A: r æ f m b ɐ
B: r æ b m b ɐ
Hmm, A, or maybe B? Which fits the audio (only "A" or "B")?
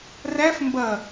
A